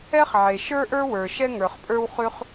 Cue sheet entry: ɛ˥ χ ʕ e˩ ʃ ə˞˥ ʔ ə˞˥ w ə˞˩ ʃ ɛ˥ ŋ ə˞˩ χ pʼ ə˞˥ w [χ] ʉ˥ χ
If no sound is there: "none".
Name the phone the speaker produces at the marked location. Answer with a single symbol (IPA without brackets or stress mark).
χ